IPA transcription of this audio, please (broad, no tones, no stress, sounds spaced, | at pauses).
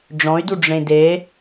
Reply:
ɖ͡ʐ ɔ̃ y̯ d u ɖ͡ʐ ẽ d e